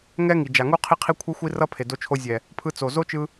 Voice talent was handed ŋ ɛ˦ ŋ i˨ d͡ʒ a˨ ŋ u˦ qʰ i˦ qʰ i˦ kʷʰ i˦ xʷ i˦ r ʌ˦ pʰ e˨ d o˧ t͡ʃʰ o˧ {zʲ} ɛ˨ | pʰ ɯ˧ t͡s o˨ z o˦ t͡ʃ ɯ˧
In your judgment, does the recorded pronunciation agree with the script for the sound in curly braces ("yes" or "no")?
yes